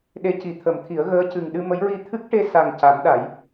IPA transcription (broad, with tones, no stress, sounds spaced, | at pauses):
ɗ e˧˥ c i˨˩˦ t̪ʰ ə˨˩˦ m t̪ʰ i˨˩˦ ə̯ ɣ əː˧˥ c ɨ˨˩ ŋ ɗ ɨ˧ m ə˧˥ j ɹ i˧ t̪ʰ ɨ˦˥ k̚ ʈ e˧ s a˨˩ ŋ c a˨˩˦ m ɗ a˨˩˦ j